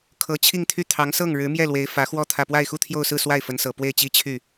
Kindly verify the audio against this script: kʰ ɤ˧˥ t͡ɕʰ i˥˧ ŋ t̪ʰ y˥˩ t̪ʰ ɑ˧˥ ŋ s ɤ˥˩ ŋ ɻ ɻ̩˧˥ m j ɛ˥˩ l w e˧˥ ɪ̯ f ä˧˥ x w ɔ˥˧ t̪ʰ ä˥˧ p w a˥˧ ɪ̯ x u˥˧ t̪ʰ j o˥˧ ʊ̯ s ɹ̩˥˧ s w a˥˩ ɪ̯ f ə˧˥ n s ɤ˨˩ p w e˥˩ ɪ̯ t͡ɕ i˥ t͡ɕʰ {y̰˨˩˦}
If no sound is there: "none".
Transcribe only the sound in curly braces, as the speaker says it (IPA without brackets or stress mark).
y˥˩